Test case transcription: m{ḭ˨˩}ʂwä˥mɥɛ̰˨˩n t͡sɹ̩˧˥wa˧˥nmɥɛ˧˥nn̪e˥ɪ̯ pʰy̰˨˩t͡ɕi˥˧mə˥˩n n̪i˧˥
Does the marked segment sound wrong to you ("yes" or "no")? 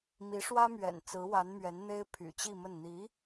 yes